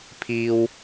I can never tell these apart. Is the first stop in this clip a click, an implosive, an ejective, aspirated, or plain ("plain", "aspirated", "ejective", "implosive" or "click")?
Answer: aspirated